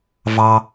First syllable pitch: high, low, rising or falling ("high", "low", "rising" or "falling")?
high